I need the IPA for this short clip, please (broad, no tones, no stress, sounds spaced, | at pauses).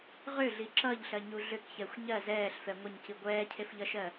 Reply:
ʁ ʏ ɮ i ǁ ʌ ʎ ɬ ɜ ɲ u ɮ ʏ k ç ɛ xʷ ɲ ɜ z ɛː ɬ f ɛ ŋʷ ə ɲ c i ɡʷ ɛː cʰ e f ʎ ʌ ʃ ɜ